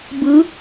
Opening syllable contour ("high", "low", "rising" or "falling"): rising